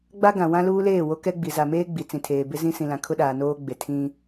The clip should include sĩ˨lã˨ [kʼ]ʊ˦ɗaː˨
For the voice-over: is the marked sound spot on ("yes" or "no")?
no